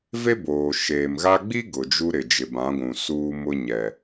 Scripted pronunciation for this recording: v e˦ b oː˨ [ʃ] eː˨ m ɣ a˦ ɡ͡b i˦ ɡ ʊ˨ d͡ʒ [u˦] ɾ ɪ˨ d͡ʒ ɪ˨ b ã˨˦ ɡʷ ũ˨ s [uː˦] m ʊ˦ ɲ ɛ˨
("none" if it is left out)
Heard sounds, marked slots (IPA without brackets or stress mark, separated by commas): ʃ, u˦, uː˦